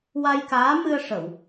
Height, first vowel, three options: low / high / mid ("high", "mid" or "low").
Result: low